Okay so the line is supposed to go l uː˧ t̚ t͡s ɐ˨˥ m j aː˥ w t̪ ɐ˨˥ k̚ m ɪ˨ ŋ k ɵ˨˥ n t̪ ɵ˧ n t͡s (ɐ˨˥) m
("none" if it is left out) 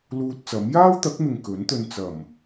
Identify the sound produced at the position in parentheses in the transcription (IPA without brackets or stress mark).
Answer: ɐ˨˩